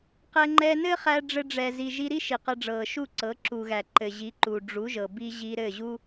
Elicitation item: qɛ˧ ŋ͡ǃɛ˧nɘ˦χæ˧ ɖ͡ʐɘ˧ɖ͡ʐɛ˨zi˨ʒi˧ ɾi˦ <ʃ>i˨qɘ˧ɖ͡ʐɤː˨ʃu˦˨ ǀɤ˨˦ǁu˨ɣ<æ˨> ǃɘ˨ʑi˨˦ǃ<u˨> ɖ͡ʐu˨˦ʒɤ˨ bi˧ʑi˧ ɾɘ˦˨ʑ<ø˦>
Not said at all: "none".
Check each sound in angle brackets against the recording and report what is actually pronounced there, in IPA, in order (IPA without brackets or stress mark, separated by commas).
ʃ, æ˨, u˨, u˦